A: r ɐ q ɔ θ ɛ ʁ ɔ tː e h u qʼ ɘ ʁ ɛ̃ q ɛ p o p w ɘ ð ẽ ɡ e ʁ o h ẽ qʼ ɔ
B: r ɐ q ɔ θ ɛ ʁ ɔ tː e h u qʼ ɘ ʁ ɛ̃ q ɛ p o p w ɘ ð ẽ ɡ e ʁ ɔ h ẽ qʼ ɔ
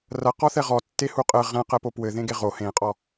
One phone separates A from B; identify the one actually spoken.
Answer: A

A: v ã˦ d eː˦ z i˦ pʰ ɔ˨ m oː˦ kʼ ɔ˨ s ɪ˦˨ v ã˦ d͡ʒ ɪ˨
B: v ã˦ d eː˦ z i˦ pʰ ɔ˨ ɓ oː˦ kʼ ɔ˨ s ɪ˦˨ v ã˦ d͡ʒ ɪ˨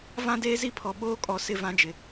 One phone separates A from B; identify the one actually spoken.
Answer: B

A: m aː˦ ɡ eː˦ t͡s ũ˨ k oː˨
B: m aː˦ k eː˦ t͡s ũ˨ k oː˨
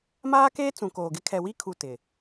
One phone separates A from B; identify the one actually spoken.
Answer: B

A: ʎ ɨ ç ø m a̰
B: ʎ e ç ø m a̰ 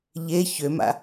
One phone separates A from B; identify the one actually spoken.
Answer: B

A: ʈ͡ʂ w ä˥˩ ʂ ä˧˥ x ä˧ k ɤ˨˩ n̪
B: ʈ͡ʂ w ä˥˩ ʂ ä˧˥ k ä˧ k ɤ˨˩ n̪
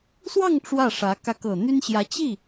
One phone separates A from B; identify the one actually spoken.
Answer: B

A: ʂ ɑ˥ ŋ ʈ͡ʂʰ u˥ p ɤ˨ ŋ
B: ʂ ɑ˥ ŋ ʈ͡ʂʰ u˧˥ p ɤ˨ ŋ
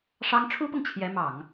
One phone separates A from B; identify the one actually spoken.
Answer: A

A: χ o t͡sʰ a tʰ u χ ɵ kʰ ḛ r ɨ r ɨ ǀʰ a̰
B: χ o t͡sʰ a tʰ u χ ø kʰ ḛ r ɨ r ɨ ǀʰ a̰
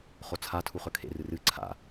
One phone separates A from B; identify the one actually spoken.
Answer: A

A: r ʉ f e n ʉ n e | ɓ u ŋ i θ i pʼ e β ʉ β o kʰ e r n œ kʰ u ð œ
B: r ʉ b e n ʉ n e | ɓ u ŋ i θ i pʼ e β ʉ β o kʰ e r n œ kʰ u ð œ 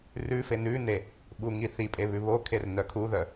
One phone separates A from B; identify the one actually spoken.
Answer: A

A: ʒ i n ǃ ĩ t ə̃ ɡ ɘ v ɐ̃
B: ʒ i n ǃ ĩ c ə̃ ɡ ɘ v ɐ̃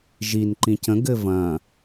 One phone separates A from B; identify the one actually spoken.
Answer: B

